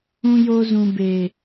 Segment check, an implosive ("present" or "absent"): absent